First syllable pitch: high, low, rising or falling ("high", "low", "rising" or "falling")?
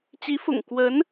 rising